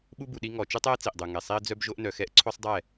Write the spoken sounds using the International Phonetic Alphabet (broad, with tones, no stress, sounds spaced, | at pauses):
ɓ u˦ b u˨ ɗ i˦ ŋ ɔ˨ t͡ʃ u˦ tˤ ɛ˦ ə̯ t͡s i˨ ʔ dˤ u˨ ŋ ɛ˨ sˤ i˦ ə̯ d͡z œ˦ b ʒ o˦ ʔ n œ˨ x ɛ˦ ʔ ǀʰ o˦ sˤ dˤ ɛ˦˨